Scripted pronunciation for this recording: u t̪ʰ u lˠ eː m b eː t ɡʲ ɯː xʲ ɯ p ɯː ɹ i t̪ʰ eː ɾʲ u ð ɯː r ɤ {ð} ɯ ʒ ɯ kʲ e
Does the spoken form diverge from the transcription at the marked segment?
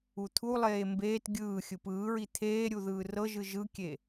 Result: yes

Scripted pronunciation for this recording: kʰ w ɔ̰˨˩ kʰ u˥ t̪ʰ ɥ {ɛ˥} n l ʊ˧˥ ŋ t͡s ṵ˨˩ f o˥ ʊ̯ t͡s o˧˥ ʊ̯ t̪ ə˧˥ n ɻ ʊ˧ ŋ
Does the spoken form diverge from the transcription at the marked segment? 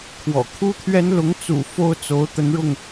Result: no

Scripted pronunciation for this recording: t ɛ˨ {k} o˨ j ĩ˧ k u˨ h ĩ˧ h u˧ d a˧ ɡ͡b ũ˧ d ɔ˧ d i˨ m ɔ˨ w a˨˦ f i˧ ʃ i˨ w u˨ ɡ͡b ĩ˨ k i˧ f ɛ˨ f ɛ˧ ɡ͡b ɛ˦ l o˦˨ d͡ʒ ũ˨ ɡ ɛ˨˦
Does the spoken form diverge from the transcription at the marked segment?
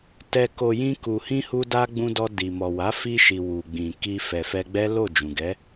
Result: no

